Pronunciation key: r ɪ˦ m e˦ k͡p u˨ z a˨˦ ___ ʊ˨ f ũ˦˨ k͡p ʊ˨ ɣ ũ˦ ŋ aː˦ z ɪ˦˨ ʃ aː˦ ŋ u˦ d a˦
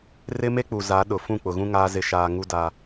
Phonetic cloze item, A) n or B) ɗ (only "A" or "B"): B